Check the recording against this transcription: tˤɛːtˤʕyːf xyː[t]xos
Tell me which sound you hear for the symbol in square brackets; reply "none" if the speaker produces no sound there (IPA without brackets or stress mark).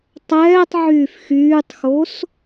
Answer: tˤ